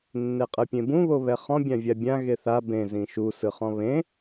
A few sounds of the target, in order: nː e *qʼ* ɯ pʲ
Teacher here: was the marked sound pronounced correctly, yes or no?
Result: yes